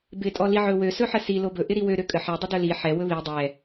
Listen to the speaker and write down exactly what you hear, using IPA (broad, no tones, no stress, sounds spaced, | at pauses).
b ɪ tʼ ɔ l i ʕ ɵ w ø s ɵ ħ ə s i l o b ɵ ʔ ɪ ɾ i w ø ɾ ø kʼ ə ħ ɛ dˤ ɪ d ɵ l i ħ ɛ w ɵ β i dˤ ɛ